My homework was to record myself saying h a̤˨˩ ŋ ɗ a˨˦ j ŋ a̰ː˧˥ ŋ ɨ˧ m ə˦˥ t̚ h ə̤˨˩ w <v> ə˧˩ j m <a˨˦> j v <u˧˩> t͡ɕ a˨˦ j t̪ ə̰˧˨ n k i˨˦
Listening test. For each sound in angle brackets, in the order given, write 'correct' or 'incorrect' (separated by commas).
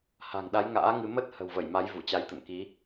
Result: correct, correct, correct